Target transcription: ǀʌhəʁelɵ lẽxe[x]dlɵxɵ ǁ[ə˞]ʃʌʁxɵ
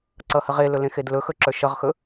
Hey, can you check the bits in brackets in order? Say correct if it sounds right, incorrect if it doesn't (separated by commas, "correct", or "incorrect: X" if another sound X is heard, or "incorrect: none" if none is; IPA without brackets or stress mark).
incorrect: none, correct